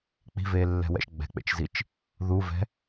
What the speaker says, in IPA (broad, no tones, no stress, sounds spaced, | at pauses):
k͡p i̤ v eː lː ɛ̤ w ɛ̰ ʃ ɡ͡b ɛ̤ k͡p ḛ t͡ʃ z i t͡ʃ | ð u v ɛ̤